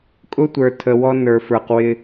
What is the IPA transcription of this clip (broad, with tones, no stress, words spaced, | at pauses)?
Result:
kʼʊ˦tʷə˞˨ tʰə˨ wɔ˦nə˞˨fə˞˨q wɪ˦